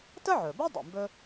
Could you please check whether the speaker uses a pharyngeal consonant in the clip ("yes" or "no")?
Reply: yes